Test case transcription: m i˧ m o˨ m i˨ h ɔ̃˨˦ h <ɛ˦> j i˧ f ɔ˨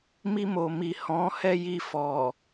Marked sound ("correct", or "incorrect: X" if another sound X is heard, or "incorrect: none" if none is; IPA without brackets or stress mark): correct